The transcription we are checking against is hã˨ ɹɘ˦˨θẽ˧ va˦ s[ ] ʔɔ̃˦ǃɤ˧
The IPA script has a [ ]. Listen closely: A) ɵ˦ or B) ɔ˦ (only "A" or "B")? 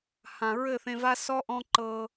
B